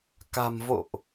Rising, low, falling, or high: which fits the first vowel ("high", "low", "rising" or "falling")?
low